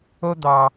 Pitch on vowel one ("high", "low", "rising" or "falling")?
high